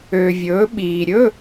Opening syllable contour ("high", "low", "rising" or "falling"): low